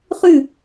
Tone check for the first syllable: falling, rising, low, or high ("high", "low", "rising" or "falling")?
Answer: falling